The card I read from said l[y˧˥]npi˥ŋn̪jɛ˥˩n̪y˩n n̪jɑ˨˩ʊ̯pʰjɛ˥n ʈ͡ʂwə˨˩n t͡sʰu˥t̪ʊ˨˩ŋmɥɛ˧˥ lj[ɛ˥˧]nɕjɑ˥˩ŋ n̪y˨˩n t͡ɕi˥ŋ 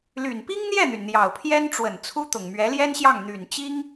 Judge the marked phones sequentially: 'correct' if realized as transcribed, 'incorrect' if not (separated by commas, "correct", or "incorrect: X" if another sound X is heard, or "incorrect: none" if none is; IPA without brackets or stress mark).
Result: incorrect: y˨˩, incorrect: ɛ˥